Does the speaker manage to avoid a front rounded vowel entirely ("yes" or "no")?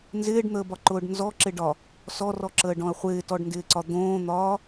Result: yes